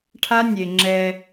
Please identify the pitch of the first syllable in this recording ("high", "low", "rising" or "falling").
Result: high